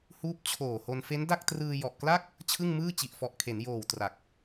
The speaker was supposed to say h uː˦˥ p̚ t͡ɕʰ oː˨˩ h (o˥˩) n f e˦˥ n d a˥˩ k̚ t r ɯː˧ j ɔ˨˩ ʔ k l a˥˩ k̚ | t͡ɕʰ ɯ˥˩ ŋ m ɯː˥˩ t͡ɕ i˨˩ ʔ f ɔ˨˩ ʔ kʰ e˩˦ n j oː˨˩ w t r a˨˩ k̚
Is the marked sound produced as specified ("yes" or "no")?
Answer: no